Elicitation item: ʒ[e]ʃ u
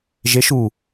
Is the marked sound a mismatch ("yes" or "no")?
no